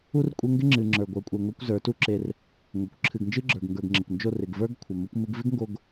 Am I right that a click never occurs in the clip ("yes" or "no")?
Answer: no